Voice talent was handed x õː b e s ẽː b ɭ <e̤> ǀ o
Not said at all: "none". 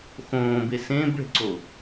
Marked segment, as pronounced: e̤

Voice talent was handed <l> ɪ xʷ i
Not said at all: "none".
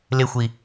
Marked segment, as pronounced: l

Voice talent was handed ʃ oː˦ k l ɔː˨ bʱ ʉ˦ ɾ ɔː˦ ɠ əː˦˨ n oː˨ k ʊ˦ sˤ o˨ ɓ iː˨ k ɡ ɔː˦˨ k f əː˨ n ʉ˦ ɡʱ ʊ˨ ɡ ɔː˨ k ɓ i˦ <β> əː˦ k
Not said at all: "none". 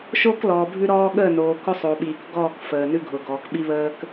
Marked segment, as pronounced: β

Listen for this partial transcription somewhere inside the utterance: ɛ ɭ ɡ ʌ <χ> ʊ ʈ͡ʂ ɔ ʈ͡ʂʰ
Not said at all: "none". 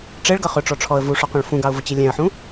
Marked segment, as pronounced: χ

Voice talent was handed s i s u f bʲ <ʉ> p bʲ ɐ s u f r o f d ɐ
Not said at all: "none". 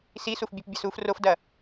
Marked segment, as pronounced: ʉ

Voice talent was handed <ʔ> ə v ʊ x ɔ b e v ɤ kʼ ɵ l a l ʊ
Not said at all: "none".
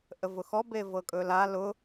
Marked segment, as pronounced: ʔ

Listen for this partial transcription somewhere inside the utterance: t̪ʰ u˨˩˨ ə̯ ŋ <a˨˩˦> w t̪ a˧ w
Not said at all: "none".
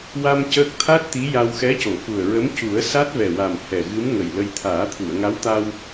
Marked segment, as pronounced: a˧˥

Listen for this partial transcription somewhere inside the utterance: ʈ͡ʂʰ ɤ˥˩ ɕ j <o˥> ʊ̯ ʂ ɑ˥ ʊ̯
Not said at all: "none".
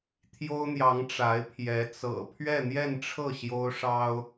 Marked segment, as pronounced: o˥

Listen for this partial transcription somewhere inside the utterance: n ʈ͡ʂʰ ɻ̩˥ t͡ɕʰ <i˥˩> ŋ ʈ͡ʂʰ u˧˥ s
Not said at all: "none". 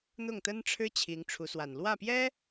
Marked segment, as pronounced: i˧˥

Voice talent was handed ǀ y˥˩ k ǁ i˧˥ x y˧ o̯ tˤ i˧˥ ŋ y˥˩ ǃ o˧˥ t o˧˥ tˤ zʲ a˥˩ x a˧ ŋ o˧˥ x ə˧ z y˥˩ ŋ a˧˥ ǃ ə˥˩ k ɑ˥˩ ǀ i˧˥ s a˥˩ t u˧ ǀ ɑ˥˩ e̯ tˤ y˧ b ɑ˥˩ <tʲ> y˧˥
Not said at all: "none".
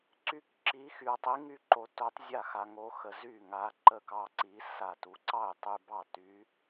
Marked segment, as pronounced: t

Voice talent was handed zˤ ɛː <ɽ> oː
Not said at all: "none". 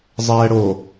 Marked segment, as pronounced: ɽ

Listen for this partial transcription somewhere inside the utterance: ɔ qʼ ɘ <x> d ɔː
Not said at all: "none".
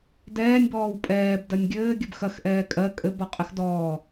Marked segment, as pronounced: x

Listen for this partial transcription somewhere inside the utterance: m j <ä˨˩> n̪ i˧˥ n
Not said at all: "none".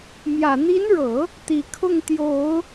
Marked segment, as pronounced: ä˨˩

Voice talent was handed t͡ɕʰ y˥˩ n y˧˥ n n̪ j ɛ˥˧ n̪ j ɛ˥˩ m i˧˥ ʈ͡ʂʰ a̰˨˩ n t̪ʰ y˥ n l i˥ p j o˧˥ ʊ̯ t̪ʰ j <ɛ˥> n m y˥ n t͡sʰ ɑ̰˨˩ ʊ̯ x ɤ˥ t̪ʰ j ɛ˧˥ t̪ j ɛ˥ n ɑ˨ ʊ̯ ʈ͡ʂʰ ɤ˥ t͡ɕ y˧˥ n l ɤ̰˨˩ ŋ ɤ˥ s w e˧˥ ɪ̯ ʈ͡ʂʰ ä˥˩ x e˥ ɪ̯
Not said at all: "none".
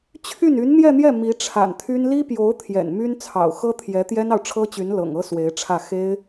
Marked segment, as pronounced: ɛ̰˨˩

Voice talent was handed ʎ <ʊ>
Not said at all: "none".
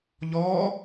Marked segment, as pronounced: ɔ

